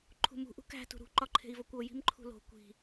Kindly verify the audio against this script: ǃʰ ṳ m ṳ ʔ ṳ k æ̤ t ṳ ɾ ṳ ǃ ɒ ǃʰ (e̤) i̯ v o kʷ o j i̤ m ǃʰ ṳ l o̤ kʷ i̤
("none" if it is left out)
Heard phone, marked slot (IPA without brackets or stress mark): e̤